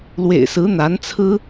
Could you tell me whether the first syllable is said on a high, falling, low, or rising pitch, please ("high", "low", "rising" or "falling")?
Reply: low